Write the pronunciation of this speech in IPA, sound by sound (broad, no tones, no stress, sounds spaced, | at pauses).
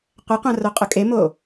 qʷ ɛ qʷ ã r o qʼ ʊ kʼ e m o